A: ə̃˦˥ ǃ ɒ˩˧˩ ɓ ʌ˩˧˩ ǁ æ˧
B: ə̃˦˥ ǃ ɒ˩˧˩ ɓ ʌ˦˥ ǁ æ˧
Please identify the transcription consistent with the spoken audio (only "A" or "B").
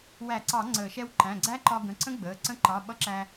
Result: B